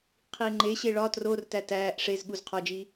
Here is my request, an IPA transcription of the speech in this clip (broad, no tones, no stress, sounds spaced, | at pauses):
qʰ iː ŋ͡ǃ e ɕ e ɭ ɒ t r o r t æ t æː ʔ ʂ e z ɠ u z qʰ ɒ d͡ʒ iː